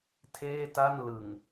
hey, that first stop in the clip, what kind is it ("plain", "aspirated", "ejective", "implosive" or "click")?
aspirated